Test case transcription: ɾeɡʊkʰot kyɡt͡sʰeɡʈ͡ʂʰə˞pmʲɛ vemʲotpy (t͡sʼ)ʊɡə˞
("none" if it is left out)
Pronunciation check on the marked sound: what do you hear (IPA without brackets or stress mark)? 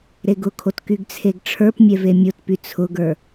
t͡sʰ